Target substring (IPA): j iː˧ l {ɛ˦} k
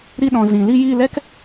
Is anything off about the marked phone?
no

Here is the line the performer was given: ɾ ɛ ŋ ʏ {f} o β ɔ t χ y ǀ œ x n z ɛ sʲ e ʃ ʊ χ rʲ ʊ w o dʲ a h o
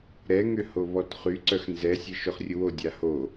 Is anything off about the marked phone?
yes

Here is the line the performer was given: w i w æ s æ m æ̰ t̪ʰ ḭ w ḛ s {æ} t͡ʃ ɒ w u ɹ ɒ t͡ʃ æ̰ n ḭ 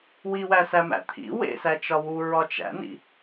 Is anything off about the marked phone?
no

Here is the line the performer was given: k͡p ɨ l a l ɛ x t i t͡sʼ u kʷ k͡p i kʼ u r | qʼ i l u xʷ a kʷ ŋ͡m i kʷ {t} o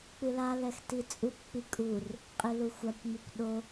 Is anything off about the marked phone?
yes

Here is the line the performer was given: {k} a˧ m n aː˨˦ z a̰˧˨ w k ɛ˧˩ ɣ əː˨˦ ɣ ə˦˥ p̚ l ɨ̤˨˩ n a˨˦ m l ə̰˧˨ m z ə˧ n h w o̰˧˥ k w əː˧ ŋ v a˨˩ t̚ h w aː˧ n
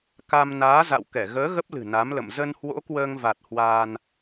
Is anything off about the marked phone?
no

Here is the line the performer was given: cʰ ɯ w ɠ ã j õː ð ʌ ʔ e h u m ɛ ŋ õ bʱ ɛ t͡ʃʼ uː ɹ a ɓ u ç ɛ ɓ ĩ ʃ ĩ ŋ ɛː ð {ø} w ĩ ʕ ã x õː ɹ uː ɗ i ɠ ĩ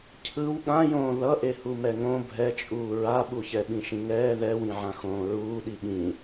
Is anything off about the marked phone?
yes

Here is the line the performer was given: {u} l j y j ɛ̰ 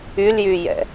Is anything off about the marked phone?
yes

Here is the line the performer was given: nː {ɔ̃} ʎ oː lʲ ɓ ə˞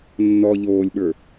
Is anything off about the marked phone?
yes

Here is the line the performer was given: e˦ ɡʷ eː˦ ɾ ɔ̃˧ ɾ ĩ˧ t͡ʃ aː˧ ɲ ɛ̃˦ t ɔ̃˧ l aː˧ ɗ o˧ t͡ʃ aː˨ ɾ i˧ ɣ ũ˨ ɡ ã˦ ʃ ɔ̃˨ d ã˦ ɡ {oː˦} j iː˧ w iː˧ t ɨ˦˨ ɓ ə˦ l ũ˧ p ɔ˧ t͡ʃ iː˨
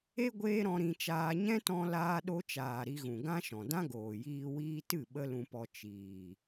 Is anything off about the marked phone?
yes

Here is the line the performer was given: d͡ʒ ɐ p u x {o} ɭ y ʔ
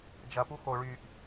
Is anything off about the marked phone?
no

